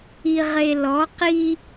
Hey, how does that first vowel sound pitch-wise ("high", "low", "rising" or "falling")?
low